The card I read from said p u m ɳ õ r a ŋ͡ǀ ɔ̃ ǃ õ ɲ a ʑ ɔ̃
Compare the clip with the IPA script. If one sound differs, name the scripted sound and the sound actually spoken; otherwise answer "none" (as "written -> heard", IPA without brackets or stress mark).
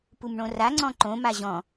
ɲ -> m